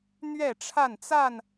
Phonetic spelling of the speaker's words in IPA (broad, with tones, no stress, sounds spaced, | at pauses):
n̪ ɥ ɛ˥˨ ʈ͡ʂʰ a˥˨ n t͡s a˥˨ n